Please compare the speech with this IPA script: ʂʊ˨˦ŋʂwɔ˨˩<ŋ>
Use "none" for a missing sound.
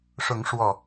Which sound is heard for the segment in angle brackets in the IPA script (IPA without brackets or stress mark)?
none